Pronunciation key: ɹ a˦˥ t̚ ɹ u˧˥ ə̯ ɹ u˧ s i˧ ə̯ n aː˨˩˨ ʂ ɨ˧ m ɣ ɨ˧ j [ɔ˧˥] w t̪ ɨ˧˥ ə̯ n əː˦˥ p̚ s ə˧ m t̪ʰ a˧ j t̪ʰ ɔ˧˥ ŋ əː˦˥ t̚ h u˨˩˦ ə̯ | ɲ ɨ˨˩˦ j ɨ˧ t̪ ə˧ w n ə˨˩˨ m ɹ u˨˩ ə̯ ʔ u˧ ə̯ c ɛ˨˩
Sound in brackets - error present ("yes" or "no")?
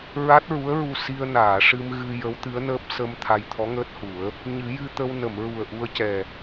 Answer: yes